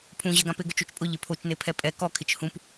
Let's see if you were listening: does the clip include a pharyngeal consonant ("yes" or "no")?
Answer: no